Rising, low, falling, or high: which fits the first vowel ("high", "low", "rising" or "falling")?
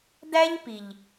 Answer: high